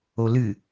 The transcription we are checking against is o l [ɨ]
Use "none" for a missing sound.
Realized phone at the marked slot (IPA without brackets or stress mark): ɨ